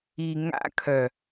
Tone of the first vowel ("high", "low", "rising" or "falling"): low